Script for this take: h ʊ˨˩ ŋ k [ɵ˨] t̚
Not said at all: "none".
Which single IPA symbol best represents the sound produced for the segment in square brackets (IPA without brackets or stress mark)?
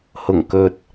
ɵ˨